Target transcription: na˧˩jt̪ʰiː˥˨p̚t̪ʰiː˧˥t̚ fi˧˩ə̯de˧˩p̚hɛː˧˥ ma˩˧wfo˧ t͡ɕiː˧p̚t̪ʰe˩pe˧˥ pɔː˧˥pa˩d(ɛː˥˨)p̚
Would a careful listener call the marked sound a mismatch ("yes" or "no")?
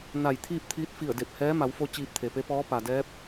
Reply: yes